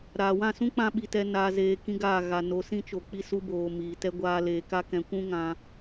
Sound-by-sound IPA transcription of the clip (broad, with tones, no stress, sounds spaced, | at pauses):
ɾ aː˨ w ã˦˨ s ũ˦ k͡p ã˧ ɓ i˧ t ɛ˦ n aː˦ z eː˦ k ĩ˦ ɡ aː˦˨ ɣ a˧ n o˨˦ s ĩ˦ t͡ʃ o˨ k͡p i˦ s u˦ b oː˨ m iː˨ t ɛ˦ ɡʷ aː˦ l eː˨˦ k a˦ k ɛ̃˨˦ kʷ ũ˦ ŋ ã˧